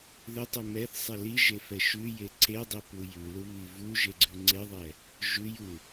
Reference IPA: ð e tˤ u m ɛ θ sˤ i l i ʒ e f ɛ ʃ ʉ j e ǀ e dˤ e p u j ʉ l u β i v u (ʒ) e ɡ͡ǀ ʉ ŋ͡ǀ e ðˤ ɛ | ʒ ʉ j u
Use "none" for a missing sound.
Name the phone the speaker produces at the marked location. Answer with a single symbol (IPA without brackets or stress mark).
ʒ